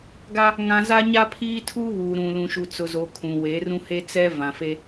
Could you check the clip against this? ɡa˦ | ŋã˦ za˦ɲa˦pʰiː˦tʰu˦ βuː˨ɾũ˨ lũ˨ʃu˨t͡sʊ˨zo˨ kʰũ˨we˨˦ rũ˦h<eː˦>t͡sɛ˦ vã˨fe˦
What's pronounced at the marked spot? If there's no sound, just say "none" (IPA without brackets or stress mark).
e˦